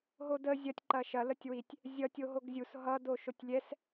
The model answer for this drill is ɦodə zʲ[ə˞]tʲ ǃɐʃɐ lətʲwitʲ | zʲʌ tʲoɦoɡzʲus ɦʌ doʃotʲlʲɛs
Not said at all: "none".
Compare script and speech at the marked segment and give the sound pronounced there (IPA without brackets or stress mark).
ɐ